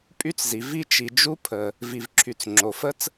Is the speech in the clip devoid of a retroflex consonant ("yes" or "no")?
yes